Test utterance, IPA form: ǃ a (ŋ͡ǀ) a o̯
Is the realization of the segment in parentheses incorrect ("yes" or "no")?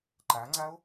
no